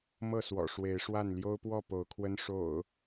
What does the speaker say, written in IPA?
m ɤ˥˨ s w ɔ̰˨˩ ʂ w e˨˦ ɪ̯ ʂ w a˥˨ n l j o˦ ʊ̯ p w ɔ˥˨ p o˨˦ ʊ̯ kʰ w ə˦ n ʂ o̰˨˩ ʊ̯

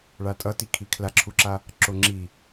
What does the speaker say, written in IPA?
ɭ a tʼ ʌ t i kʰ i kʰ l a ǁʰ u ǁ a | ǁ o ŋ͡ǁ i

